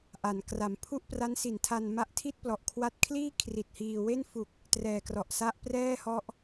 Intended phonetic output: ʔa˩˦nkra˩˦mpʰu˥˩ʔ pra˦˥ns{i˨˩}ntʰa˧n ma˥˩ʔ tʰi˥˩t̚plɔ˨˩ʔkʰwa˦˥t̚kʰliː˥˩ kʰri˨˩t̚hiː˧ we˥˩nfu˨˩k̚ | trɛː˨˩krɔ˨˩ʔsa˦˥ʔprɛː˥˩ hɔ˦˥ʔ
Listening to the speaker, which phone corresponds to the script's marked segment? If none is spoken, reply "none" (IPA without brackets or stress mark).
i˨˩